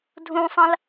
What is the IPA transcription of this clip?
dʱ ũ sˤ ɐ̃ l

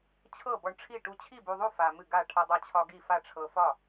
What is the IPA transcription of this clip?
t͡ɕʰ ɤ˥˩ b ɔ˧ ɳ ʈ͡ʂʰ i˥˩ ʈ u˧ t͡ɕʰ i˥˩ b u˧ ðˤ u˥˩ f a˧ m ɨ˥˩ ɡ a˥˩ ʈʰ a˧ dˤ a˧ t͡ɕʰ ɒ˧ ɡ i˥˩ f a˥˩ ʈ͡ʂʰ ɤ˧ f ɒ˥˩

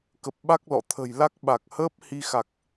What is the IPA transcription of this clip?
k ə˨˩ p̚ ɓ a˦˥ k̚ l ɔ̰˧˨ t̪ʰ ə̤˨˩ j l a˦˥ k̚ ɓ a˨˩ k̚ h əː˦˥ p̚ h i˧ x a˨˩ k̚

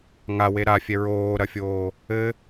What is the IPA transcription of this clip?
ŋ a w e ɾ a fʲ ɛ ɹ oː ɾ ɐ fʲ oː | ɘ

